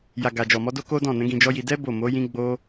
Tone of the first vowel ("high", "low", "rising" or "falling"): low